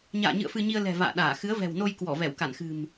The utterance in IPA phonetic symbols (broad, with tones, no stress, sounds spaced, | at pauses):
ɲ a̰ː˧˨ ɲ ɨ̰˧˨ ə̯ f ɨ˧ ɲ i˧ ə̯ l ɛ̤˨˩ v a̰ː˧˨ ɗ aː˧˩ x ɨ˨˦ ə̯ v ɛ̤˨˩ w n o˧ j k w ɔ˧˩ v ɛ˧˩ w k a˧˩ n x ɨ̤˨˩ m